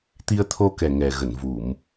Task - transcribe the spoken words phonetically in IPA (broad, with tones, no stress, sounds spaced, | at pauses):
t̪ i˧ ə̯ t̪ʰ o˧ k ɛ˨˩ ŋ ɛ˨˩ ɣ ə˧˩ n v u˧˩˨ m